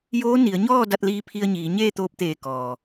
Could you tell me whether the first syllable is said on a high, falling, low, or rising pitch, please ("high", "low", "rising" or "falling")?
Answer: rising